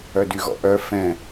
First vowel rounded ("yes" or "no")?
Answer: yes